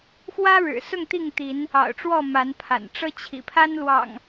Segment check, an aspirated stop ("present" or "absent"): present